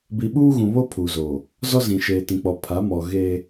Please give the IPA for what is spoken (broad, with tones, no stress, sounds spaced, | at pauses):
b i˨ ɓ uː˦ ɣ ũ˨ β o˦ pʰ uː˨ z oː˨ | z ɔ˦ z ĩ˨ ʃ eː˨ t ĩ˨ k͡p ɔ˨ pʰ a˨˦ m ɔ˨ ɣ eː˦